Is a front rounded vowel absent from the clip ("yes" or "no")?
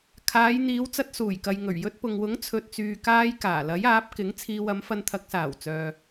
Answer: no